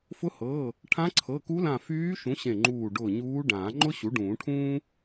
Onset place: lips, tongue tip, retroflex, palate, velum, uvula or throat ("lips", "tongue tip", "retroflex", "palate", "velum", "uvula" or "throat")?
lips